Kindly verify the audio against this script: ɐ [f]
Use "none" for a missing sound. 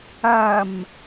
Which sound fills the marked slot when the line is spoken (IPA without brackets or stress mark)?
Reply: m